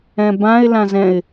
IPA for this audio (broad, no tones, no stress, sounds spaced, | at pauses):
ɛ̃ b ã ɪ̯ l ã z ɛ̃ ɪ̯